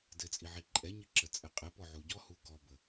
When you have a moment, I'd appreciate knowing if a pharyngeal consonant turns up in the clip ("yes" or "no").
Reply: yes